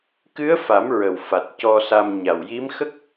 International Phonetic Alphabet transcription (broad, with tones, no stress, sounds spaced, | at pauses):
k ɨ˧˥ ə̯ f a˨˩˦ m ɹ ə˨˩ w f a˨˩ t̚ c ɔ˧ s a˧ m ɲ a˨˩ w j i˧˥ m x ə˦˥ k̚